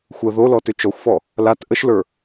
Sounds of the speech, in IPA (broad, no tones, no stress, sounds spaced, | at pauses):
xʷ ə ð o l ɔ t ʏ t͡ʃ ɔ xʷ f ɔ | l a t ʔ ə ʃ l ə˞